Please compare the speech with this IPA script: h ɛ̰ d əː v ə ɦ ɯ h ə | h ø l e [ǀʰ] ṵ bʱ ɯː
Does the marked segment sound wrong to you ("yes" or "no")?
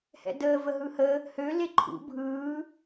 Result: yes